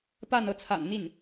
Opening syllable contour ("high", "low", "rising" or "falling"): falling